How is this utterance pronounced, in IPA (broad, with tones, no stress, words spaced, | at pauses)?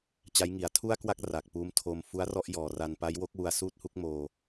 t͡ɕa˦˥jŋi˨˩a̯ tʰu˥˩a̯kwa˥˩k̚ ra˨˩k̚puː˦˥m tʰo˧m fu˦˥a̯rɔ˥˩ʔjɔː˨˩ ra˧npa˦˥j wo˦˥k̚wu˧a̯ suː˥˩t̚hu˥˩k̚moː˧